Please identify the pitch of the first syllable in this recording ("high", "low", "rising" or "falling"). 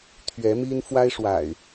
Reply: rising